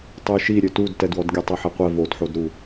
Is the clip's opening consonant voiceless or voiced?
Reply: voiceless